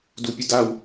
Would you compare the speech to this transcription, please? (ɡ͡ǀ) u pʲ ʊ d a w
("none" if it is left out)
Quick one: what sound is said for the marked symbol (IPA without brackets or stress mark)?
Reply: d